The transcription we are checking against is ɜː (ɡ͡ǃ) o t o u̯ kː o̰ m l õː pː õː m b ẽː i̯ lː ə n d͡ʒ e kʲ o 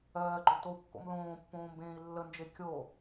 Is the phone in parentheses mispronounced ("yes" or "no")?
no